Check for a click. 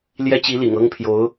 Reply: absent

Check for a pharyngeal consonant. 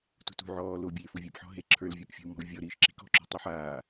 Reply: present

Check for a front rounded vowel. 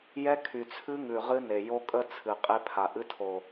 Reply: present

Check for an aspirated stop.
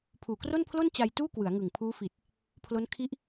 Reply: present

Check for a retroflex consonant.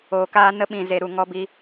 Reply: absent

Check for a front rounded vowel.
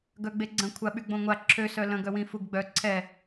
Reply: present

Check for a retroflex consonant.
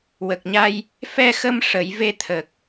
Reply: present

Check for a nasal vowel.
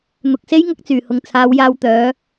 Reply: absent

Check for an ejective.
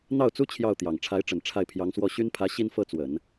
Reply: absent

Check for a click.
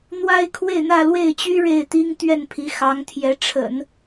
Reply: absent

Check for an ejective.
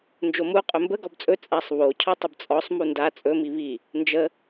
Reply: present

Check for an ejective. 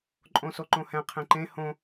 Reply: present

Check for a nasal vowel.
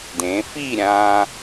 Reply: present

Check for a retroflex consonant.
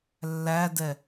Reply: absent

